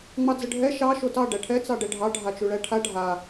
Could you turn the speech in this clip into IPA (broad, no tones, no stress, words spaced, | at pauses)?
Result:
ŋ͡mɑd͡zəɖʱɛ ʃɑ ʃotɑ ɖæʈʰɛ t͡sɑɖɛɖʱɑ ɖʱat͡ʃuɭæʈʰa ɖʱa